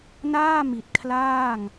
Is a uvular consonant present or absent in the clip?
absent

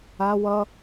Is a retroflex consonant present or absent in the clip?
absent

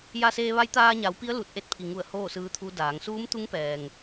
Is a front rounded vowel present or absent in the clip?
absent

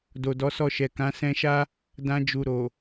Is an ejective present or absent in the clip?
absent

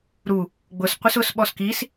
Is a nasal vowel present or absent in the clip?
absent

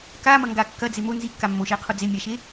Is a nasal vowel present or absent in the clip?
absent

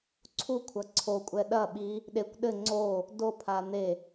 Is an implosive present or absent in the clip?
present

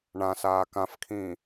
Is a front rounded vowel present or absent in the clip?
absent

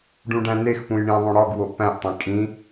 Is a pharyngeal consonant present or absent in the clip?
absent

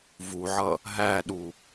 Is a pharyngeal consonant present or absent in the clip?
present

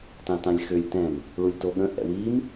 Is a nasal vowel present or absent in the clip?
present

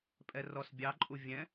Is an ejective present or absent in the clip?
present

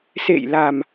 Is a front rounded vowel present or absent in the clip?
absent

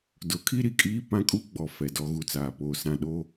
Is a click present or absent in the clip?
absent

